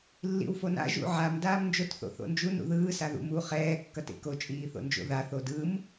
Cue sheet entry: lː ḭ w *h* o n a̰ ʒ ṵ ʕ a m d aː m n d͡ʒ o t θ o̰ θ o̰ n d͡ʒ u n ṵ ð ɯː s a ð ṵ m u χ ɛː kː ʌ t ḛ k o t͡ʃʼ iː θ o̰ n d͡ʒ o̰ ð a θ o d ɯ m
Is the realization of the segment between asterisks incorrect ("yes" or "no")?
yes